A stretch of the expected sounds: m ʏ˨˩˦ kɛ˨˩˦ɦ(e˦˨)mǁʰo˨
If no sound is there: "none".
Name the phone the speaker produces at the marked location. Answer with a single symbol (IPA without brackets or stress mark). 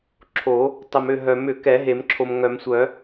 e˨˩˦